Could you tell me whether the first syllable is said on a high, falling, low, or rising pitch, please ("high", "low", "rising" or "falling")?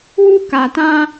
high